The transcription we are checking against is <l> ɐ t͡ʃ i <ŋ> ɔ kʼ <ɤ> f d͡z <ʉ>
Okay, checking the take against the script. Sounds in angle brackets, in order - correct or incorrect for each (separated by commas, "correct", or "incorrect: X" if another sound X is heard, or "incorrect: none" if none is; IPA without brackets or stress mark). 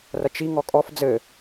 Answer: incorrect: r, correct, incorrect: ɔ, incorrect: ɘ